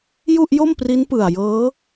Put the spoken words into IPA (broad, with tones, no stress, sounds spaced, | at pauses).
j u˥˩ ʔ j o˥˩ m p r i˦˥ n p ɯ˨˩ a̯ j ɤː˦˥